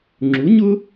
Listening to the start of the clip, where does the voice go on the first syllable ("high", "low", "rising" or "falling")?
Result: rising